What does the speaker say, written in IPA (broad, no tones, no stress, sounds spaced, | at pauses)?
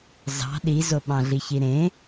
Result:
z ɑ̤ ɗ i z o ɓ ɑ̃ ɮ i ç i ɾ ẽ